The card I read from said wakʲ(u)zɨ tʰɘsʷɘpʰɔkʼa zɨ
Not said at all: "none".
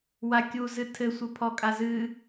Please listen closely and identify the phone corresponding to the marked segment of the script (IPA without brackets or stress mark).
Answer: u